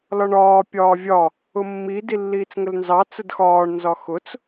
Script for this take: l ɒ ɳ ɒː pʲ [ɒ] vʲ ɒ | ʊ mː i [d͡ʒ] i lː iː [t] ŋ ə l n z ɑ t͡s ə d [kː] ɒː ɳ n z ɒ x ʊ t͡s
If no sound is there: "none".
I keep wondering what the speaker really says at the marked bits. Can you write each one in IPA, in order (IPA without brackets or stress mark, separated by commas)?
ɒː, d, t͡s, x